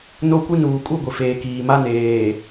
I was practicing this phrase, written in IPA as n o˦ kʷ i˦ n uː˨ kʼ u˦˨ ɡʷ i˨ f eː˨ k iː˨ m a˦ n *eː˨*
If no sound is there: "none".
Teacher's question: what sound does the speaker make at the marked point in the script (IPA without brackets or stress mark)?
eː˨